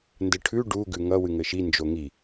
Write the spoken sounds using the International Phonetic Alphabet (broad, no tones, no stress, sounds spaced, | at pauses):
n d ɘ ʈʰ ʉ ɖ u ɡ ʉ ŋ ʌ w ɨ ŋ ɘ ʃ i n d͡ʒ o ŋ i